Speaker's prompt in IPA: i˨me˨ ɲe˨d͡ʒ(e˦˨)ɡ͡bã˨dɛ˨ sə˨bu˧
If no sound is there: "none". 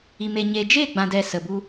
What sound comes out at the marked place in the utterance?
e˦˨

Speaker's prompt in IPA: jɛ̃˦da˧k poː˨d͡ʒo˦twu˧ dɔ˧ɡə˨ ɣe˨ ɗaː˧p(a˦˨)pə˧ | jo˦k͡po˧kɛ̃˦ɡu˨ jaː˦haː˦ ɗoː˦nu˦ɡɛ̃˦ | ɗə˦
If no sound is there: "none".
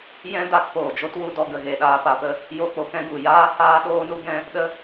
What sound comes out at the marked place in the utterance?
a˧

